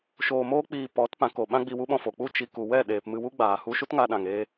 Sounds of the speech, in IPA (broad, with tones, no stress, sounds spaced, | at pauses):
ʃ oː˧ m oː˦ k͡p iː˧ p ɔ˨˦ t p ã˨˦ k o˨ ɓ ã˦ ɡ͡b i˧ w u˦ ɓ ɔ̃˧ f o˨ k͡p u˦˨ t͡ʃ i˧ k u˨ w ɛ˦˨ ɗ eː˨ p m ɨ˧ w u˦ ɡ͡b aː˨ h u˧ ʃ u˦ t ŋ a˧ ɗ ã˨ ŋ eː˧